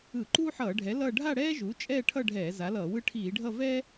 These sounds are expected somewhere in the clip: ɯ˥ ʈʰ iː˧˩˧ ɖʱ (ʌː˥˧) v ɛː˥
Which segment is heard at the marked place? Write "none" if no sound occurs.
ʌ˥˧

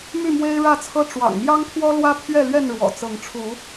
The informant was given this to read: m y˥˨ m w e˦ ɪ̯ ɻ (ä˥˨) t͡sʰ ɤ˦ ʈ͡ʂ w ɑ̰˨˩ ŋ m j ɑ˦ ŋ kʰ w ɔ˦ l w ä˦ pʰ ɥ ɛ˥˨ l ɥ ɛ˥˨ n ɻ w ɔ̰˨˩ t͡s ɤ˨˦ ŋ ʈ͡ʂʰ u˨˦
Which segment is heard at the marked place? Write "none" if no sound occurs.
ä˥˨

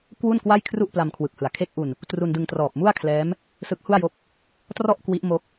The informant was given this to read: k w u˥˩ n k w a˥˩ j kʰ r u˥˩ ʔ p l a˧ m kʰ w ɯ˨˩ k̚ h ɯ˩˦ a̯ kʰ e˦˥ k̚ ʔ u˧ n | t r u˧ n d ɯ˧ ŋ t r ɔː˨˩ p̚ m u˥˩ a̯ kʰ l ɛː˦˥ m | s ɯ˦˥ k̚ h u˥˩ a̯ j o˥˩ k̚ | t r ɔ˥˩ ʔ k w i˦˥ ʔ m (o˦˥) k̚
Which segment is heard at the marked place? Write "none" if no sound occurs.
o˦˥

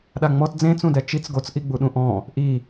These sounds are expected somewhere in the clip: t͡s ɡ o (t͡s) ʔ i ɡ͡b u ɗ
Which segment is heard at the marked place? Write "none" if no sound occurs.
t͡s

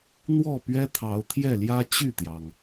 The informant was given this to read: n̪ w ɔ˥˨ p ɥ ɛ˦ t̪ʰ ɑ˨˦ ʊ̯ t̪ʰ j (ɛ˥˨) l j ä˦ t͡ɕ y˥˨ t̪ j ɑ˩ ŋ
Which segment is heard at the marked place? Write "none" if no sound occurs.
ɛ˥˨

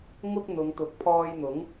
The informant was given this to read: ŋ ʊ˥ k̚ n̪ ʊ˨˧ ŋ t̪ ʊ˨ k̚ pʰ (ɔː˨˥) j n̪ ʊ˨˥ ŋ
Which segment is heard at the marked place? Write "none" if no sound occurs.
ɔː˧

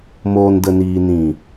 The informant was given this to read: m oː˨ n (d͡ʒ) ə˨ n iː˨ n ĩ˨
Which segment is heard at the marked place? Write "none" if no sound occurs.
d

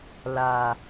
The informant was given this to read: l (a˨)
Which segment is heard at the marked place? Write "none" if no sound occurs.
a˨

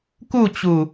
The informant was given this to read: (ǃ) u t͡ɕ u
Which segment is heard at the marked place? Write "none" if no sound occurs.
k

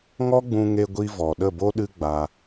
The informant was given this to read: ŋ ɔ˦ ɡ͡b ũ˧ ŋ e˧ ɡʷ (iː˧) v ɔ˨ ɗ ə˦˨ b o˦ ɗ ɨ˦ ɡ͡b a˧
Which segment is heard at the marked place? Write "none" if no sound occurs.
i˧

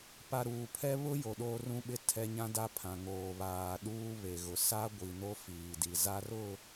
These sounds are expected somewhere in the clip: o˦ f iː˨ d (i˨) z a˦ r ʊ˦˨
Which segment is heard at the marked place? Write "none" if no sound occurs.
i˨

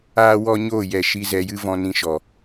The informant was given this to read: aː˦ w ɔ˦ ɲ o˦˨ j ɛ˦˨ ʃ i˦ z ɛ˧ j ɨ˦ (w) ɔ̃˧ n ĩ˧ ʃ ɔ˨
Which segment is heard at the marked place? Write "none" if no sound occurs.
v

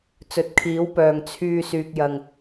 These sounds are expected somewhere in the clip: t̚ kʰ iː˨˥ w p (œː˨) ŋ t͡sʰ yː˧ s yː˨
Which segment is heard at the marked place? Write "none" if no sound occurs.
œː˨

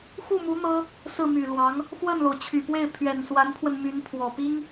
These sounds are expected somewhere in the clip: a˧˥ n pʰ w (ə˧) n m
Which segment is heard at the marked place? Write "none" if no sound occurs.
ə˧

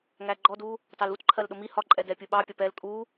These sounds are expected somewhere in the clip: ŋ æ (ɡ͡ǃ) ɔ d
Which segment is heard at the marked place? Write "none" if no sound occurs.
ɡ͡ǃ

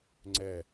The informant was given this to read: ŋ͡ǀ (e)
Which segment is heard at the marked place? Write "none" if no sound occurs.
ɛ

